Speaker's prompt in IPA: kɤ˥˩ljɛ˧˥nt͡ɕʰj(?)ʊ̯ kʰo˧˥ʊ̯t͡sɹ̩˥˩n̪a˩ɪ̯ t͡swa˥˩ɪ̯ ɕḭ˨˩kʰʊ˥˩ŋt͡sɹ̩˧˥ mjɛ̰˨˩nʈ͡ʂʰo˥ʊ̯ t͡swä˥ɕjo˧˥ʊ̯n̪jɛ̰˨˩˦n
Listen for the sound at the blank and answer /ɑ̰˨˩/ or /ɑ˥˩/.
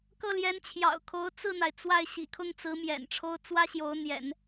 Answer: ɑ̰˨˩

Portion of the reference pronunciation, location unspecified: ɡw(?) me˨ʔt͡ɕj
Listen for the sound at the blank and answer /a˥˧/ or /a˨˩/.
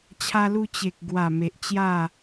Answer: a˨˩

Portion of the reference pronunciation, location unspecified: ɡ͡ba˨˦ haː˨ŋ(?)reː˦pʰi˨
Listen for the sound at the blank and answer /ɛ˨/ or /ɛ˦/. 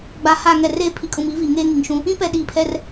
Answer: ɛ˨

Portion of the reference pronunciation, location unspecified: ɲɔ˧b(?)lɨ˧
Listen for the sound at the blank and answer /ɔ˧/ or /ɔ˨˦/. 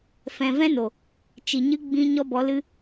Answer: ɔ˨˦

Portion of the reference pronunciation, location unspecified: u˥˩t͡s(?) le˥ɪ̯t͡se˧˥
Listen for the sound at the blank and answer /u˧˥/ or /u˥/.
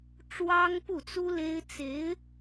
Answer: u˥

